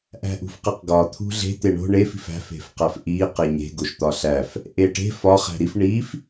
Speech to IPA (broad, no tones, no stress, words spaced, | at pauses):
ʔæ̤ʔṳfqeqɡɒ t̪ʰṳɮe̤ t̪eɳo̤ ɳef i̤fæ̤ fe̤fqæfʔi qeɲe̤ ɡoʃt̪ɒɬæf | ʔeʈe̤ fɒ χæ̤ɾif ɳif